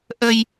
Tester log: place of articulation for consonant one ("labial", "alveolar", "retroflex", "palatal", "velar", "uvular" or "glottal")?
glottal